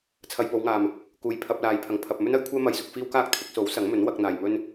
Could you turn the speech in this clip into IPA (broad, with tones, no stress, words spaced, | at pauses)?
t͡sʰɐ˧jpo˨˧wŋaː˨m | kuː˨˩jpʰɐ˧p̚laː˨jpʰɐ˨˩ŋ pʰɐ˨p̚ mɵ˥nɐ˨˥jkʷʰɛː˥ mɐ˧jsʊ˧k̚ fiː˥wkaː˥k̚t̪ʰɪ˨˥k̚ so˨˥wsɐ˨˥ŋmɵ˨˥n wɐ˧k̚ n̪aː˨jmɵ˥n